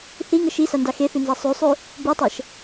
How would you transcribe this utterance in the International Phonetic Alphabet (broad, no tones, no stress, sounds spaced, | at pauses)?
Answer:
θ i ŋ ə ʃ i s a n d a x e θ ʉ n z a sˤ ʉ sˤ ʉ | b ʉ tˤ ɤ ʃ